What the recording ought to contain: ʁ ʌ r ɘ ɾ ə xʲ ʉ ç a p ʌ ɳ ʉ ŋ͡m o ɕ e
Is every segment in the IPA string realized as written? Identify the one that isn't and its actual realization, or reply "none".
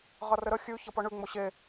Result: a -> ʌ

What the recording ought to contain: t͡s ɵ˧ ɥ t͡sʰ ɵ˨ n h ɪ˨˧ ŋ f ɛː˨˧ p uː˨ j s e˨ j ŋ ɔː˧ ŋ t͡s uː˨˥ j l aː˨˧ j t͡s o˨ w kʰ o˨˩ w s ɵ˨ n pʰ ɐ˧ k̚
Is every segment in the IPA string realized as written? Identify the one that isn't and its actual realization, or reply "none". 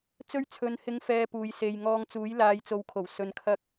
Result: pʰ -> kʰ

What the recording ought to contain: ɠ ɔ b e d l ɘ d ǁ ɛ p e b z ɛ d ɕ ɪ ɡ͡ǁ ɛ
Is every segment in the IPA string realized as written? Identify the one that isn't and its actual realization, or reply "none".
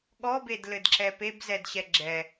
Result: ɪ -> ɛ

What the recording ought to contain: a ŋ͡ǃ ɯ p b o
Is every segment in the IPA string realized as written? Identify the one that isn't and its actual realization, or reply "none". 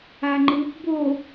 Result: none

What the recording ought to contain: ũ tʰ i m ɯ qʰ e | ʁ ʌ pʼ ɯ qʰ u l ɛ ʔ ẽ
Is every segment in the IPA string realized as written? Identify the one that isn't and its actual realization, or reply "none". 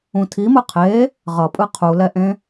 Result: none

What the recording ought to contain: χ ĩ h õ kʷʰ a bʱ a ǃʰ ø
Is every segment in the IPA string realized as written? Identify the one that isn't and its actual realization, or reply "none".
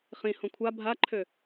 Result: none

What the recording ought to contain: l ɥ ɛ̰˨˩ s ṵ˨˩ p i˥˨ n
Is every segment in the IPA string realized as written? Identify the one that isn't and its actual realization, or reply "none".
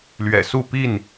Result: ṵ˨˩ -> u˥˨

